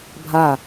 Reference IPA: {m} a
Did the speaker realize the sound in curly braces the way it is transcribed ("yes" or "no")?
no